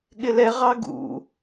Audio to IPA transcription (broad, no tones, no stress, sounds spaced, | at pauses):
ɠ ɪ l ɛ ʁ ɑ ɡ ṵ